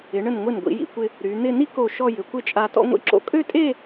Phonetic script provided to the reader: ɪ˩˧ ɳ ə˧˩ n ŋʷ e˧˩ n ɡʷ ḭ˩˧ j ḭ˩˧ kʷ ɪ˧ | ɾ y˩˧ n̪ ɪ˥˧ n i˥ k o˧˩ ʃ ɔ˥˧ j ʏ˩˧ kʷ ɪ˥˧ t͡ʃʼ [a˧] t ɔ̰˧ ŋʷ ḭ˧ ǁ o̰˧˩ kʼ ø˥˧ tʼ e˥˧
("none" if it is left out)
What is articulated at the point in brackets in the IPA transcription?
a˧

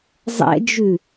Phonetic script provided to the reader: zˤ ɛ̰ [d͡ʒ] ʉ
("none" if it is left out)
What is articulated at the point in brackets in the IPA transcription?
d͡ʒ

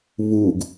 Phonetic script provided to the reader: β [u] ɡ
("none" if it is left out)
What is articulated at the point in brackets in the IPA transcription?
u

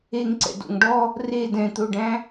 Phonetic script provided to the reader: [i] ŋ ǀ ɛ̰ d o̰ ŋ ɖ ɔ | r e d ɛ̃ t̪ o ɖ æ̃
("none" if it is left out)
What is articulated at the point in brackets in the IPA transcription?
e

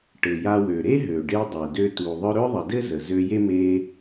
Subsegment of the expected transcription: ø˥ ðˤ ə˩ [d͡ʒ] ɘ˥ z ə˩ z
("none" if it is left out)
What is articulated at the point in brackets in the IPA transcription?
d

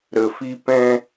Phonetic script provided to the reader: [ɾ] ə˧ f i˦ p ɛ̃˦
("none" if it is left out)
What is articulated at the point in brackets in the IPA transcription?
ɾ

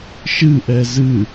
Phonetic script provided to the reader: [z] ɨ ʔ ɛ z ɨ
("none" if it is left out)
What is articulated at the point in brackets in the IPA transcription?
ʃ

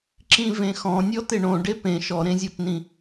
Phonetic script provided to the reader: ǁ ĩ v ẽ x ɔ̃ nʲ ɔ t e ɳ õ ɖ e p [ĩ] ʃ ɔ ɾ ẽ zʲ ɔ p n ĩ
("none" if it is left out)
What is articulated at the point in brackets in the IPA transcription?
ẽ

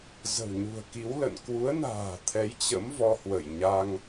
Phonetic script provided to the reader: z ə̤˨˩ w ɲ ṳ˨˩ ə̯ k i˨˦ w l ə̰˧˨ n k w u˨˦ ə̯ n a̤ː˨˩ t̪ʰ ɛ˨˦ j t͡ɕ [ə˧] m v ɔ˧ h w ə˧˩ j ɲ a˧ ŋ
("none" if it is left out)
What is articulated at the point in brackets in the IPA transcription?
ə̰˧˥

